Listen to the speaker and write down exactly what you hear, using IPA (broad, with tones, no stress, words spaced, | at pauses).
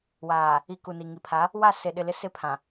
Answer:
waː˨ | i˨ ku˨ni˨ŋi˨ pʰa˨˦ | wa˦˨ se˨ɗɪ˨ lɪ˦sɪ˦pʰã˨